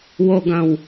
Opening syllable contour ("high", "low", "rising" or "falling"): low